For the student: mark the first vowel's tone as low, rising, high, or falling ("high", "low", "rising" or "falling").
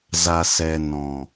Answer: low